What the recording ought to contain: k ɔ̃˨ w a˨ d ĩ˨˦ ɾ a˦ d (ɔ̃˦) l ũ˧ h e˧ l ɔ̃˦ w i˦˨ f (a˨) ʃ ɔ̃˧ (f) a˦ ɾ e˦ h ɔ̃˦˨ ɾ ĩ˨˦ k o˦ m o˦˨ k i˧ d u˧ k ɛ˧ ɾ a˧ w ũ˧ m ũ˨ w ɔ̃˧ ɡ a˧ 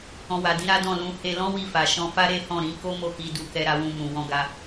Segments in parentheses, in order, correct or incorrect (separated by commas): incorrect, correct, correct